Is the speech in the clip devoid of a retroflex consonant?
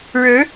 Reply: no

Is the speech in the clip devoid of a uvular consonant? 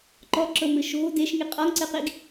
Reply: no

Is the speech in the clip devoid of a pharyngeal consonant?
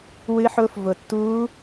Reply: no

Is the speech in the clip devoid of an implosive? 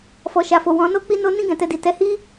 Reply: yes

